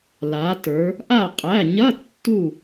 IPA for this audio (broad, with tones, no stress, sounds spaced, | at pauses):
l a˩˧ t ə˞˩˧ | ʔ a˧˩ qʼ æ˩˧˩ ɲ ɐ˧˥˧ tː u˧˩